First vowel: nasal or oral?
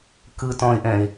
oral